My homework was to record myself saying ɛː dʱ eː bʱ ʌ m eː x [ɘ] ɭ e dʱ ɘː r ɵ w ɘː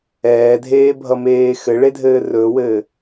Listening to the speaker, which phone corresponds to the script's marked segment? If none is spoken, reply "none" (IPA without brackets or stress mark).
ɘ